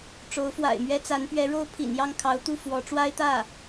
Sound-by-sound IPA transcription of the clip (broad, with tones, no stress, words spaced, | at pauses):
ʈ͡ʂo˧˥ʊ̯fwa̰˨˩ɪ̯mɥɛ˥ t͡sa˧˥npɥɛ˧˥ɻo˥ʊ̯ pʰḭ˨˩njɑ˥˩ŋkʰɑ˧˥ʊ̯t̪u˥˩ fwɔ˧˥ʈ͡ʂwa˥ɪ̯t̪ä˥˩